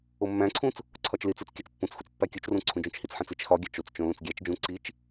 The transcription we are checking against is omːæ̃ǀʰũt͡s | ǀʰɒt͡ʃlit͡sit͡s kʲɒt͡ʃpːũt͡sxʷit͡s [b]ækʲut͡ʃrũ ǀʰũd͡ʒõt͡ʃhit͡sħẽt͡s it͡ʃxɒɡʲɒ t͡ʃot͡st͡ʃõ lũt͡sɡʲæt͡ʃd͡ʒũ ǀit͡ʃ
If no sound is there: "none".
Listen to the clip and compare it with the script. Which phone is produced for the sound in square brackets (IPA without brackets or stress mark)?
pː